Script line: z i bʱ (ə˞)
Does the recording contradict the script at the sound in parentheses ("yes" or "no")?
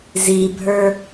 no